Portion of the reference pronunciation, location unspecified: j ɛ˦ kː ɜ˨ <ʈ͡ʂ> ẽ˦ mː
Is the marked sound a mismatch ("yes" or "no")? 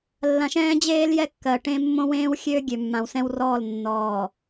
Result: yes